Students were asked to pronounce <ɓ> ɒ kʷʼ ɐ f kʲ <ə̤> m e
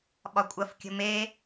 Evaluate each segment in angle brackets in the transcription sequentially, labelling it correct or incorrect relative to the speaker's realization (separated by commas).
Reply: correct, correct